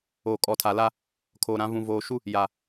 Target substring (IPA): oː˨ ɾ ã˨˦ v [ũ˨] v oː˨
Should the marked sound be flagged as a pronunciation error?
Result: no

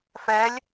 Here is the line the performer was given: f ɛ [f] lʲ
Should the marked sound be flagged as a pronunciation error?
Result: yes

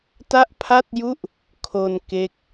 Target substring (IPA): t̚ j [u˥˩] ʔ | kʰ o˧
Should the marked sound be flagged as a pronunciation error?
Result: no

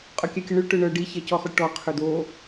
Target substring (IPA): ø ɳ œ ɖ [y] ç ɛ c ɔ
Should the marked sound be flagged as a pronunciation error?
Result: yes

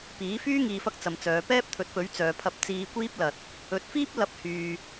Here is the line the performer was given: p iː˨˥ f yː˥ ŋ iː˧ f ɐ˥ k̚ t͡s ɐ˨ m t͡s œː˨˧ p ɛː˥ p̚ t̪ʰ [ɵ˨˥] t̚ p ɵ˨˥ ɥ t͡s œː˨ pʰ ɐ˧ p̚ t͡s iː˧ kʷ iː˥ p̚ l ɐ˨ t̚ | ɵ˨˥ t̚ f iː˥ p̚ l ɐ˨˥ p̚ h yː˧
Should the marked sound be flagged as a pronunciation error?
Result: no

